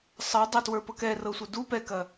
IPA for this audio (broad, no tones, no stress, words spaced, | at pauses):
sˤɤ dˤɐtwə˞pɤk ɛrɤsʷə du pɛkɐ